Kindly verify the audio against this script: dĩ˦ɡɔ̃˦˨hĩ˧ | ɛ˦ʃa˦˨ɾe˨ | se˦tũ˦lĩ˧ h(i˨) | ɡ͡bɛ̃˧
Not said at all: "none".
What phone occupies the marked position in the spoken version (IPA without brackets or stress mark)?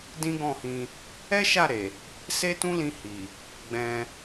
i˨